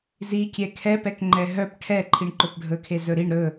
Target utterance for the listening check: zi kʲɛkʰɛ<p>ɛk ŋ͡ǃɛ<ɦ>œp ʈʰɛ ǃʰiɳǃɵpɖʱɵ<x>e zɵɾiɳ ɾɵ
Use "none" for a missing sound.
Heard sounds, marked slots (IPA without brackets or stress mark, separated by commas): p, ɦ, kʰ